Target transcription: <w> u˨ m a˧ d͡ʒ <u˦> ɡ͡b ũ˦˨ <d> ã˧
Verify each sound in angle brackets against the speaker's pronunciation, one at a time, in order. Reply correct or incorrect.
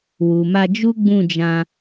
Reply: correct, correct, incorrect: d͡ʒ

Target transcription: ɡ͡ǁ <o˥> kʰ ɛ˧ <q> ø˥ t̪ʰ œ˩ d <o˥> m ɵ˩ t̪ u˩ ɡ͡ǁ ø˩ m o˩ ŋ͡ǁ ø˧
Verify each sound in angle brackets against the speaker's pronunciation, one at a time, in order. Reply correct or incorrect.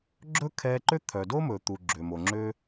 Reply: incorrect: ɵ˥, incorrect: ǃ, correct

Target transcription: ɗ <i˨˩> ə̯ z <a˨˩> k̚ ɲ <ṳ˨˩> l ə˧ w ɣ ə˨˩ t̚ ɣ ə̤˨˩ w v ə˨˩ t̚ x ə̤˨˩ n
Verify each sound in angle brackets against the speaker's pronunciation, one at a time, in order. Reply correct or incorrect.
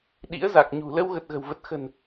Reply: incorrect: ḭ˧˥, correct, correct

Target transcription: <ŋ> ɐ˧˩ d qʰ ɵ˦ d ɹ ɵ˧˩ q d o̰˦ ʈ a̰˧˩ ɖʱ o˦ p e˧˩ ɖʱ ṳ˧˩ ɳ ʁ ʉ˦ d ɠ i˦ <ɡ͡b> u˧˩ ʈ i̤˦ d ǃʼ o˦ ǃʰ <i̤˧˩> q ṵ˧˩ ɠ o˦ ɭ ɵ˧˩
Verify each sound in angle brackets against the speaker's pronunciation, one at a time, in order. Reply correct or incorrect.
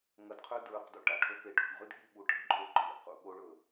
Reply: correct, incorrect: ɓ, incorrect: ḭ˧˩

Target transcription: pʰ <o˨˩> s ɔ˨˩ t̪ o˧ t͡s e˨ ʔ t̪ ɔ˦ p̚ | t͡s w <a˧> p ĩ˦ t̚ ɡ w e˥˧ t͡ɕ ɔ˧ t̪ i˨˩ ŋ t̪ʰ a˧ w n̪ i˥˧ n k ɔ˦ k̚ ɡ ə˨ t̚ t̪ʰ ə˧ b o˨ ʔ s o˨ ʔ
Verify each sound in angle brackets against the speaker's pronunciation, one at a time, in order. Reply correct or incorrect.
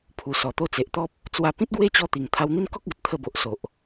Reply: incorrect: u˨˩, correct

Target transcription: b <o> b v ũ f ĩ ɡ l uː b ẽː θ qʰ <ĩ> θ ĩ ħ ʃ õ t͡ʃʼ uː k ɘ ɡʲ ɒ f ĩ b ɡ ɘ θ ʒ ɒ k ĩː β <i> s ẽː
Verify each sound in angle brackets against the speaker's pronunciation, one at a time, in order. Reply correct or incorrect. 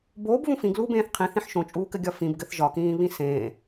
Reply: incorrect: oː, correct, incorrect: ĩ

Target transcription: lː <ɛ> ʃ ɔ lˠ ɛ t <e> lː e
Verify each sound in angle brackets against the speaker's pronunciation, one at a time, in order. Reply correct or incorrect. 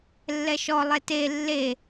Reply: correct, correct

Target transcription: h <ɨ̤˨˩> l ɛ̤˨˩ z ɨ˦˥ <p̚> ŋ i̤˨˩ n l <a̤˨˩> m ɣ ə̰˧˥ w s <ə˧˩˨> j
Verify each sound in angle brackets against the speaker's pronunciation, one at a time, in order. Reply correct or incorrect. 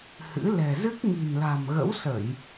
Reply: incorrect: ɨ̰˧˥, incorrect: k̚, correct, correct

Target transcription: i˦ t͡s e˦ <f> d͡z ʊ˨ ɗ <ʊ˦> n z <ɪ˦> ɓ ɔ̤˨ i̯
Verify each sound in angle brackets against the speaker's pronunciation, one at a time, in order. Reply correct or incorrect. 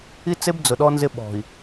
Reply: incorrect: b, incorrect: ɔ˦, correct

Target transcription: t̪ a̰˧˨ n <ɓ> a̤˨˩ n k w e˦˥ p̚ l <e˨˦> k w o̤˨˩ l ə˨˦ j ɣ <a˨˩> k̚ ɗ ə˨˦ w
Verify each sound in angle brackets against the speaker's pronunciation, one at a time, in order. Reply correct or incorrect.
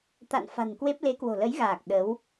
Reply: incorrect: f, correct, incorrect: aː˨˩

